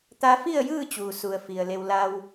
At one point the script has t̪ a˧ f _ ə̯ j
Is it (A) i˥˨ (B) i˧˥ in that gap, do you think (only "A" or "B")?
A